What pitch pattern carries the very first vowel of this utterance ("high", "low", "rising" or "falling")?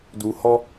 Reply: low